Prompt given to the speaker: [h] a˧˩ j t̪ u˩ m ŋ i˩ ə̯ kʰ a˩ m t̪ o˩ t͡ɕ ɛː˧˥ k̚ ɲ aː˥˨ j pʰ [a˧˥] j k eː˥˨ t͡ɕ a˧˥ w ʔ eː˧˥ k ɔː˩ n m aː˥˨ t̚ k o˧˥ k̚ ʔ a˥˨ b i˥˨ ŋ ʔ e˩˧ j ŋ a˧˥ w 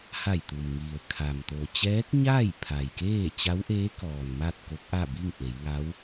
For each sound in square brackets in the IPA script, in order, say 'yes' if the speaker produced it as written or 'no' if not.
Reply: yes, no

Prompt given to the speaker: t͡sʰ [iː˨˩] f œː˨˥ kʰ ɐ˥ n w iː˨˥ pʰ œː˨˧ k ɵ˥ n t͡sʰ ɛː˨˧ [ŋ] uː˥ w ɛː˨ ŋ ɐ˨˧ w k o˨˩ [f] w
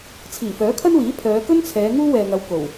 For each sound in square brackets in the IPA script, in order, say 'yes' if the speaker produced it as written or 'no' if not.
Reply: yes, yes, no

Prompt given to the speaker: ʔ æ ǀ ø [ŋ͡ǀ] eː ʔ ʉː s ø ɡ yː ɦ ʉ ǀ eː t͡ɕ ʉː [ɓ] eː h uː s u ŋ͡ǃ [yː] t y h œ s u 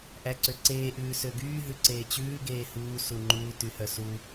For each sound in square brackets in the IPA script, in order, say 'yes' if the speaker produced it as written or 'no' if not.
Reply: no, no, no

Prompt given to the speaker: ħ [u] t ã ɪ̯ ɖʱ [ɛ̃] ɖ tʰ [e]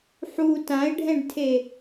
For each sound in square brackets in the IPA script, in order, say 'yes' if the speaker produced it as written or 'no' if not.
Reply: yes, yes, yes

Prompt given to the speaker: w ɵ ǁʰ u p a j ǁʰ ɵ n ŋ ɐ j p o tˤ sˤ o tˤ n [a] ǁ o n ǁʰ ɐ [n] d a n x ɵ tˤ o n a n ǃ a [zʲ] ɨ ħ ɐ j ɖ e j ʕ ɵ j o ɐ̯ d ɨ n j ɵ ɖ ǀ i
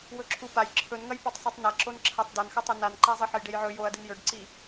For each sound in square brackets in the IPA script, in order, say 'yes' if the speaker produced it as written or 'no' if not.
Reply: no, no, no

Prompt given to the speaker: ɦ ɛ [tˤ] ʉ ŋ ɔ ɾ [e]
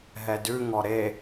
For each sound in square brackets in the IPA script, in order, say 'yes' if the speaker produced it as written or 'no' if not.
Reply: no, yes

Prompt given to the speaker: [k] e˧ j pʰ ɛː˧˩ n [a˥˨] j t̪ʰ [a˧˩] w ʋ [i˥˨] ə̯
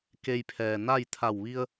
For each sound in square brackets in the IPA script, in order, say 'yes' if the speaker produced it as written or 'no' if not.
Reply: yes, yes, yes, no

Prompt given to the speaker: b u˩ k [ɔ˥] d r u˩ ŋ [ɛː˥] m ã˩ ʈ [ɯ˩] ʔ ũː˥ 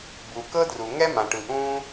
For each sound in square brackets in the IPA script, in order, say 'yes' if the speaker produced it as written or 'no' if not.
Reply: no, no, yes

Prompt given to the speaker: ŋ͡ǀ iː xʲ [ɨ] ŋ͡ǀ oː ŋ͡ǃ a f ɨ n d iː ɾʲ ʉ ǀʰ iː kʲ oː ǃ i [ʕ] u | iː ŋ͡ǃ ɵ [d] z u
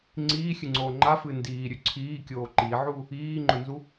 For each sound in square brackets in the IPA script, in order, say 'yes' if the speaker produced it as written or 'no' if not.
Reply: yes, yes, no

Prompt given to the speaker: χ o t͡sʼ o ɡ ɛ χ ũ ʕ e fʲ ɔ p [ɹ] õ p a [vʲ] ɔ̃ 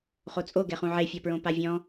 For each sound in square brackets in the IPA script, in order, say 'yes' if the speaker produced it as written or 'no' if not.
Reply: yes, yes

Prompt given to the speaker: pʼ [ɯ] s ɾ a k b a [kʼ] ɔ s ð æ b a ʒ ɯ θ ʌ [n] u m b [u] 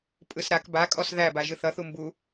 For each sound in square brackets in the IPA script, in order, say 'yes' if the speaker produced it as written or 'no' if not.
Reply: yes, yes, no, yes

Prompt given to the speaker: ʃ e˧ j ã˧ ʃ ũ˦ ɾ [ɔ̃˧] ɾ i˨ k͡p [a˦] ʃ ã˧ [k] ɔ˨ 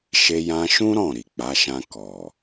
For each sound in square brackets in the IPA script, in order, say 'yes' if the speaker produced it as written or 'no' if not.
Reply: no, no, yes

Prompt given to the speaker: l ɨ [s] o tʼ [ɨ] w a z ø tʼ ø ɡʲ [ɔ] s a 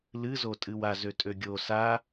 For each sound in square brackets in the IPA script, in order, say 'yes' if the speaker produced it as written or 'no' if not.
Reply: no, yes, no

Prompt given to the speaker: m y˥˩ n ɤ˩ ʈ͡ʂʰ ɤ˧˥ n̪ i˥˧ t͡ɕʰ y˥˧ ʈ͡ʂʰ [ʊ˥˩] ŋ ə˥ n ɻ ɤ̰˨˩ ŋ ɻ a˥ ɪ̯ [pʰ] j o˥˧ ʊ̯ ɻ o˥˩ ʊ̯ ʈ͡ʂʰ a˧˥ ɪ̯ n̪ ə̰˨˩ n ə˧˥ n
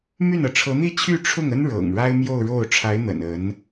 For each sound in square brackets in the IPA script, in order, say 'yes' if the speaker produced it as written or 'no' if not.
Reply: yes, no

